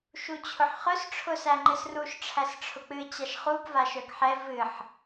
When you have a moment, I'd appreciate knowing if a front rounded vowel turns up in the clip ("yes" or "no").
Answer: yes